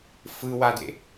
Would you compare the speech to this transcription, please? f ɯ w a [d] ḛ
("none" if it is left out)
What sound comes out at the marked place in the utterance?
d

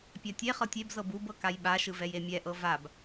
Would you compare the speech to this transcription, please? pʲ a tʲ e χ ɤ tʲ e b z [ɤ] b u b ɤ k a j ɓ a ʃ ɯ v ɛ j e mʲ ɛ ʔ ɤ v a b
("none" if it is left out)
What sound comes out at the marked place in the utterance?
ɤ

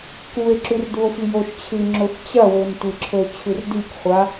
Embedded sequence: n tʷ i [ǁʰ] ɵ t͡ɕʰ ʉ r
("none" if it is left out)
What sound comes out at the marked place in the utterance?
ǁʰ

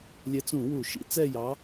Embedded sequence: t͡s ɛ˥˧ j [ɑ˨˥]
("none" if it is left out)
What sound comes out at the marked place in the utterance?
ɑ˨˥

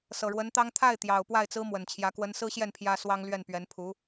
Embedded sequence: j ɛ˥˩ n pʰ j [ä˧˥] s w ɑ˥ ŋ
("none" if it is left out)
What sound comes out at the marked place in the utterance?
ä˥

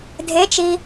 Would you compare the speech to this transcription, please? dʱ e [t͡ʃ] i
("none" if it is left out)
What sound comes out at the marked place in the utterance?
t͡ʃ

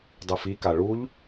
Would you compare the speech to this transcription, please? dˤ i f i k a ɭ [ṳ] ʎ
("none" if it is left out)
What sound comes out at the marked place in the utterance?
u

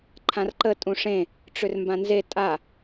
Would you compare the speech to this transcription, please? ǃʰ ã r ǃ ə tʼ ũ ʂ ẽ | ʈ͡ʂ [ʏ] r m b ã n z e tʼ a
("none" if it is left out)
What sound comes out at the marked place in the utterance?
ʏ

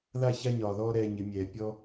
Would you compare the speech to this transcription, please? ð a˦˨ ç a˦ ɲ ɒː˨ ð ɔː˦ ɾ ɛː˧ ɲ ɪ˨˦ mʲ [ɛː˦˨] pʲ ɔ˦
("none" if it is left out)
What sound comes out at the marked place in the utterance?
ɛː˨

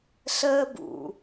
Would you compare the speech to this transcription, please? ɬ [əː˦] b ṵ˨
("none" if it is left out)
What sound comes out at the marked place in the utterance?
əː˦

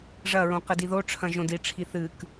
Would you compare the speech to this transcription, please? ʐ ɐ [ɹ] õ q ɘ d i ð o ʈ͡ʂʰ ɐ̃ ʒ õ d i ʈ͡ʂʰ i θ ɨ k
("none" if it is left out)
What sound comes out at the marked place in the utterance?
ɹ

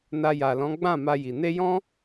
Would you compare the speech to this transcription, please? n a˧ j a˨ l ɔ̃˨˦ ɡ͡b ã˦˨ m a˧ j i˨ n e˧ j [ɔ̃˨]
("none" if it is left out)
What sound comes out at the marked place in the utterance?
ɔ̃˦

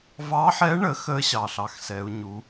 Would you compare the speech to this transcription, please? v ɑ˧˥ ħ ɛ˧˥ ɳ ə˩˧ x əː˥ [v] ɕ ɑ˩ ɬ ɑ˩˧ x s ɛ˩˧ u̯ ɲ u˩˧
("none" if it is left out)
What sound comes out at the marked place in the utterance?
none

